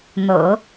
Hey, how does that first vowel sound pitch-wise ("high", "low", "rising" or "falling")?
low